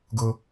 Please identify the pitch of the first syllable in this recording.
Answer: high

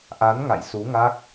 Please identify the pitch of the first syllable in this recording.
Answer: rising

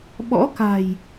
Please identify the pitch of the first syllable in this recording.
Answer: rising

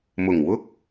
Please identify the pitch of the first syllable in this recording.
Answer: low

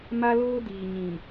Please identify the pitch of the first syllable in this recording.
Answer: high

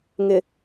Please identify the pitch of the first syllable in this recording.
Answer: low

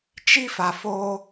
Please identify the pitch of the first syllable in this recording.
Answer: high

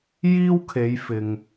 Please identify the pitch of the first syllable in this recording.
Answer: high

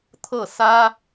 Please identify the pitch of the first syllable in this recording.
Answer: falling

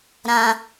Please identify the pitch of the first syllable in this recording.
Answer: high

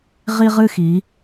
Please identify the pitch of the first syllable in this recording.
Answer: high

